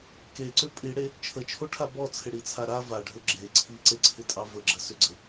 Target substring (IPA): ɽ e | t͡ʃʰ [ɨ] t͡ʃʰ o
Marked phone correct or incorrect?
incorrect